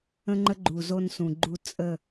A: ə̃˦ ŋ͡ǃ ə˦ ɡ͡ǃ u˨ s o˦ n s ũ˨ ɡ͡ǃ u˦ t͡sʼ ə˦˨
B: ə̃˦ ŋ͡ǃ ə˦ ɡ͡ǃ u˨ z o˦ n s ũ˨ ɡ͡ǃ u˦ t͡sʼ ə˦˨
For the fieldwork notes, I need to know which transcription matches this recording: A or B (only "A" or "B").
B